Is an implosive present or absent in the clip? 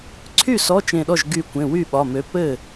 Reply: present